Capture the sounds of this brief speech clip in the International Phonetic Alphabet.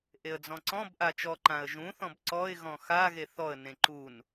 ʔ e ə̯ d͡z ɔ̃ ǀ ɔ̃ b ʔ a t͡ʃ ɔ ǃ ã ə̯ ʒ ũ θ ɔ̃ b ǀ ɔ ɪ̯ ɣ ɔ̃ x a ɣ e θ ɔ ə̯ n ẽ ǃ u n

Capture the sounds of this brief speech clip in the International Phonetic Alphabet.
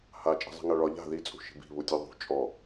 h a t͡ʃʼ i̤ zˤ i̤ ŋ a ɭ ɒ ʎ a̤ ð i t͡sʼ ṳ ʃ i̤ b i̤ β u tʲ u ðˤ ṳ t͡ʃʼ ɔ

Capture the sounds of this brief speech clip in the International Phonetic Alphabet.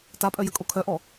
t a pʼ œ j ə kʼ o kʰ œ ʔ ɔ

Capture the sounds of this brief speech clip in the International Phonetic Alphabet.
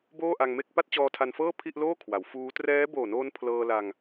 b oː˥˩ ʔ a˧ ŋ m e˥˩ k̚ p a˥˩ t̚ t͡ɕ ɔː˧ tʰ a˧ n f ɤː˥˩ pʰ i˥˩ ʔ l oː˥˩ kʰ w a˩˦ w f uː˦˥ t r ɛː˦˥ b oː˨˩ n oː˧ n pʰ l ɤː˧ l a˧ ŋ

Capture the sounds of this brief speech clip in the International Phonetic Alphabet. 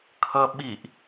kʰ ʌ ɓ i ʔ

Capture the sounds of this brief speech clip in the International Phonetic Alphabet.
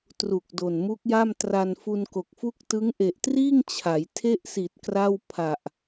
t r u˨˩ k̚ d o˨˩ n m u˦˥ k̚ j a˥˩ m t r a˧ n f u˧ n k o˨˩ k̚ f u˥˩ k̚ t ɯ˦˥ ŋ ʔ e˨˩ ʔ t r iː˥˩ ŋ t͡ɕʰ a˩˦ j tʰ e˥˩ ʔ s i˨˩ t̚ k r a˥˩ w pʰ a˨˩ ʔ

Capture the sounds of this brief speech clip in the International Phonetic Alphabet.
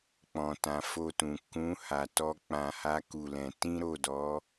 k͡p ɔ̃˨ t ã˨ f o˧ t ũ˨ k ũ˨˦ h a˧ t ɔ˦ k͡p ã˧ h a˦ k u˦˨ l ɛ̃˧ t ĩ˦ ɾ o˦˨ d ɔ˨˦

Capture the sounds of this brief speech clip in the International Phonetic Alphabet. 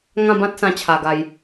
ŋ ã˥˧ b ã˦ t̚ s ã˧ t͡ɕʰ a˨˩ ɡ a˨˩ j

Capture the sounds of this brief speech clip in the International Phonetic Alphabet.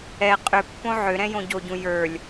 ɛ qʼ ʏ pː õ ʕ ʏ ɾ ɛ̃ j õ ɟ o ɟ ũ j ə˞ lʲ

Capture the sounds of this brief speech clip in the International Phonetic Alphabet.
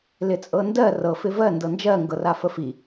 l ɪ t͡sʼ ɤ n d ɜ r ɤ f ɪ v ɜ n d ɤ n d͡ʒ ɜ ŋ ɡ ɤ r a f ə f i

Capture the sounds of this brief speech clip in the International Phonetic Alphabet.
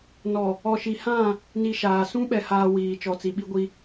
n ɔ˨ | ɔ˨ ʃ i˨ h ã˦˨ | n i˨ ʃ aː˨ s ũ˦ ɓ ɛ˨ h aː˨ w iː˨ t͡ʃ ɔ˨ t͡s i˨ ɓ i˦ ɡʷ i˦

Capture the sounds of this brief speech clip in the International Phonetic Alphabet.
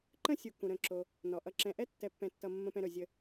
ǃ ə̃˥ sʲ u˨ k ũ˩ ɾ ə̃˩ ǁ o˩ | n ɔ˩ ʔ ʌ˨ ǁ ɛ̃˨ ʔ ɛ˥ tː ɛ˨ pː ɛ̃˨ tː ʌ˨ mː ə̃˨ p ɛ̃˨ ɾ ɵ˩ zʲ ə˨

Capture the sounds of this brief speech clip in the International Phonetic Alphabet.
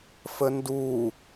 f ə n d u

